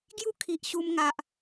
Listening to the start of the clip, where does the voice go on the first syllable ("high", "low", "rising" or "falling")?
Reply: high